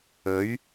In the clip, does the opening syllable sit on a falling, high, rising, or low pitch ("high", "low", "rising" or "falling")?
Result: rising